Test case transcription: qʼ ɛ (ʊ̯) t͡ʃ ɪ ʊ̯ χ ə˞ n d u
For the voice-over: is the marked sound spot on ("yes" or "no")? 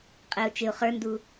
yes